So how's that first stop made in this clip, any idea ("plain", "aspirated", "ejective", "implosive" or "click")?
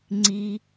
click